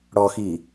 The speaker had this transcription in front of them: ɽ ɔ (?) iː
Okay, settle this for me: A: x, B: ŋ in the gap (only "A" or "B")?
A